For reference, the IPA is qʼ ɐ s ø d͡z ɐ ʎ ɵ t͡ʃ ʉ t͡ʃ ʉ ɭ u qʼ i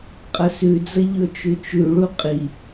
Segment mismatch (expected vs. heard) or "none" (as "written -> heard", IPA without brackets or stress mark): ø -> ʉ